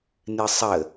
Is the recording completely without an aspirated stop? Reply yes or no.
yes